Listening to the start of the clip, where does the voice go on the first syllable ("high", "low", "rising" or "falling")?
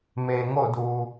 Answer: low